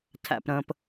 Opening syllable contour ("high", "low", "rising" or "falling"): low